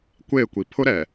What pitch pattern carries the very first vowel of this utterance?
falling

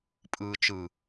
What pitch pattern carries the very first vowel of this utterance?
low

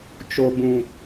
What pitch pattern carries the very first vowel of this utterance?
low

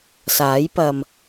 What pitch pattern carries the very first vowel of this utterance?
rising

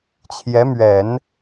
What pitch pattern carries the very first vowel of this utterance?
rising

